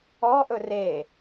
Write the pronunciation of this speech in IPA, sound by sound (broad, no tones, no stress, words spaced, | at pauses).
ɔʔɵ re